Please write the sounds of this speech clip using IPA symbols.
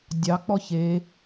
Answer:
dʲ ɑ k͡p ɔ ç e

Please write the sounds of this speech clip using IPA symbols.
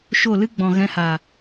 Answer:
ʃ o˦˨ l ɨ˦ ɡ͡b ɔ̃˨ ɣ ɛ̃˧ h a˨

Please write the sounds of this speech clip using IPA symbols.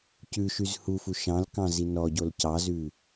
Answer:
c ʉ ʃ y z h u f u ʃ ɑ̃ l k ɑ̃ z i n ɔ ɟ o l c ɑ z ʉ

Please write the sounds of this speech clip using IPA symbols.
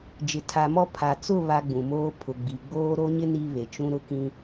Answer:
d͡ʒ ɪ˨ tʰ a˨ m ɔ˦˨ pʰ a˨ t͡s ʊ˦˨ β a˦ ɡ͡b ũ˨ m oː˦ pʰ ʊ˨ ɡ͡b i˨ ɡ͡b oː˦ ɾ o˦ ɲ ɪ˦ n i˦ β e˨ t͡ʃ ũ˦ ɾ ʊ˦ k ĩ˦

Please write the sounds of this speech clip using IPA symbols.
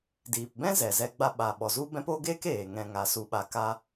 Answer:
d iː˨ p b ɛ̃˦ z ɛ˨ z ɛ˧ ɡ͡b a˧ ɓ a˨ ɓ ɔ˨ z u˦ b ɛ̃˦ p o˦ ɡ eː˦ k eː˨ ŋ ɛ̃˧ ŋ a˨˦ s u˧ ɓ a˧ k a˦

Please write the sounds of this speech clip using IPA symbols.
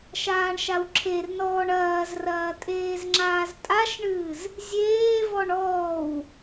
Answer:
ʃ aː ɳ ʃ a w ǁʰ e r n ɔː ɳ ɐː z r ɐː tʼ eː z ŋ͡ǁ aː z tʼ a ʃ ɳ ɨː z | zʲ eː v ɔ ɳ ɔː w

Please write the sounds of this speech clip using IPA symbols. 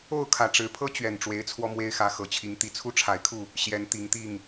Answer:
o˥˨ ʊ̯ kʰ ä˨˩ ʈ͡ʂ ɻ̩˨˦ pʰ ɤ˦ t͡ɕ ɥ ɛ˨˩ n ʈ͡ʂ w e˨˦ ɪ̯ t͡sʰ w ɔ˧ m w e˦ ɪ̯ x ä˨˦ x ɤ˨˩ t͡ɕʰ i˨˦ ŋ t̪ i˨˦ t͡sʰ u˦ ʈ͡ʂʰ a˨˦ ɪ̯ kʰ u˥˨ | ɕ j ɛ˨˦ n t̪ i˨˦ ŋ t̪ i˥˨ ŋ

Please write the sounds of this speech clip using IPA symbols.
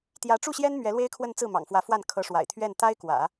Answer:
t̪ j ä˧˥ ʈ͡ʂ u˥˩ ɕ j ɛ˥ n m ɥ ɛ˧˥ l w e˥ ɪ̯ kʰ w ə˥˧ n t͡s ɹ̩˥˩ m ɑ̰˨˩ ŋ f w ä˧˥ f w a˥˩ n kʰ ɤ˧˥ ʂ w a̰˨˩ ɪ̯ t̪ʰ ɥ ɛ˥˩ n t̪ a˥ ɪ̯ k w ä̰˨˩˦

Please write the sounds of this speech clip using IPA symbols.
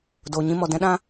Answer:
d o˨ ɲ ĩ˧ m ɔ˨ d ɛ̃˦ ɗ ã˦

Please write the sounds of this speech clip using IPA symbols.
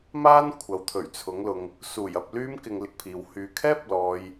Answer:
m aː˥ n kʷʰ ɐ˨ w t̪ʰ ɵ˨˩ ɥ t͡sʰ ʊ˨˥ ŋ l ʊ˨ ŋ | s uː˨˩ j ɐ˧ p̚ l yː˥ m k ɪ˧ ŋ l ɪ˥ k̚ pʰ iː˨ w h yː˧ kʰ ɛː˥ p̚ l ɔː˨ j

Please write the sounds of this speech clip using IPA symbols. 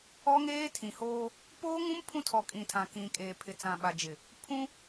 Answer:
ɔ˦ ŋ eː˦ tʰ ĩ˨ h oː˦ | p oː˦ ŋ ũ˦ m pʰ ũ˦ tʰ ɔ˨ kʼ ĩ˨ tʰ ã˨ k ĩ˨ kʼ eː˨ pʰ ɪ˨ t͡s ã˨ ɓ a˨ d͡ʒ ɪ˨ | pʰ ũ˦

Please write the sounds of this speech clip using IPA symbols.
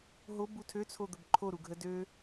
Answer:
ɦ o b u tʰ ø t͡sʰ o d̪ ə b ǃʰ o ɾ u ɡʱ ə d ø

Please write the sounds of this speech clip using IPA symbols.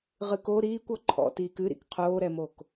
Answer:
ʁ ɨ k o ɾ iː kʷ ɔ ǃʰ ɔ̰ t iː k ɨ ɾ ḭ k qʰ oː ɾ ɛ m o k

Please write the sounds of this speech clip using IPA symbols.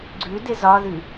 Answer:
ɡ͡ǀ ʉ d ɪ z ɒ ð ʉ

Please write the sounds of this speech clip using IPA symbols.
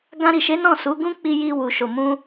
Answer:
ɡ ã˧ ɾ i˨ ʃ e˨˦ n ɔ̃˦˨ s u˨˦ ɡ ũ˦ k͡p i˧ j i˧ w u˨ ʃ o˨ m ũ˧

